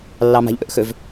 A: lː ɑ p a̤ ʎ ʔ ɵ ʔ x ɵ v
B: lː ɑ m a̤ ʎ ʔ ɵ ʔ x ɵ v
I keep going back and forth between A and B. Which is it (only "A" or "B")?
B